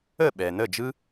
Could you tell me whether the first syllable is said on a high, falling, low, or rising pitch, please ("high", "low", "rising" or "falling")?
falling